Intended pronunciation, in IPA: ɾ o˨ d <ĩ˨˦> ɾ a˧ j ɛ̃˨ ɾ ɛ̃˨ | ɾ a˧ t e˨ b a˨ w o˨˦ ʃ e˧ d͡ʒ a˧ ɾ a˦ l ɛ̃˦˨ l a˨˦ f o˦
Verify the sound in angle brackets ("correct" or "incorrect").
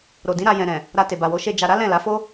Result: correct